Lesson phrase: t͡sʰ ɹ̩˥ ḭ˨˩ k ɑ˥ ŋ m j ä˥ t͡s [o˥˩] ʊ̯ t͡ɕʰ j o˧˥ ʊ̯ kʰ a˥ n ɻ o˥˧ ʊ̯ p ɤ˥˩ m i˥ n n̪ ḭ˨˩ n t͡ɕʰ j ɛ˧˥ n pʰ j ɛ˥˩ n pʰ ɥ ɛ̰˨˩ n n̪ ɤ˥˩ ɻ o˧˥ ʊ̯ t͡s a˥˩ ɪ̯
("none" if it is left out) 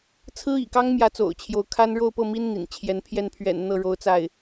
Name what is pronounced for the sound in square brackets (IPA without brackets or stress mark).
o̰˨˩